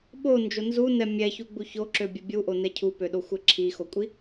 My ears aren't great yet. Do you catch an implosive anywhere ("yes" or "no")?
yes